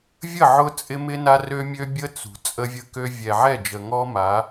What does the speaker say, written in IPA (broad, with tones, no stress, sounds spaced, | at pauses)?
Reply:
vʲ ə˦˨ ʕ ʊ˦ t͡sʼ ɪ˦ m ɪ˦ n a˦ r ø˦ mʲ ø˦ bʲ ə˦ t͡s ṳ˨ t͡sʼ ə˦ vʲ ə˦ k ø˦ vʲ ɛ˨ ʕ ɛ˦˨ d͡ʒ ə˨ ŋ ɔ˦ m a˨˦